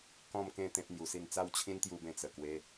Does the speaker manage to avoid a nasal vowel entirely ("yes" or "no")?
no